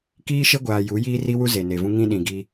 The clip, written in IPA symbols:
kiː˦ʃe˦ɡʷaː˨ ju˨˦ jiː˦ri˦wu˦ ze˨ne˨vũ˦ ŋĩ˦ɗĩ˨ɡi˦

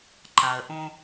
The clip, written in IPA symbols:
ǃa˨ə̯ʔõ˦

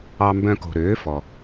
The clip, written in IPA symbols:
ɑ˦mbœ̃˦ ko̤˨ɾøː˩˥ fɔ˨

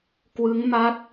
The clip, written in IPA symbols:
kwɯ˦˥ŋma˦˥t̚

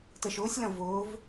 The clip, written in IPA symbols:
təʃʊːsʲ lɐ̃vʊːv

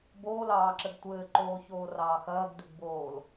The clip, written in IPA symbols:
boːlɑːǁɘɡ tʷɘːǃoːçoːrɑː xɐːɡdʉɡboːl

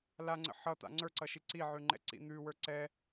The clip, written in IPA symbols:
laŋ͡ǀə̰ ħʌt̪a̰ ŋ͡ǀə˞ǀʌʃi ǀiʕʉŋ͡ǃɛ̰ǀḭ n̪ʉwə˞ ǀɛ

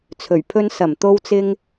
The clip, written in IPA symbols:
t͡sʰɵ˨˩ɥpʰɵ˥n sɐ˨˩mt̪o˥wt͡sɪ˥ŋ

